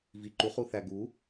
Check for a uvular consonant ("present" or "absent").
present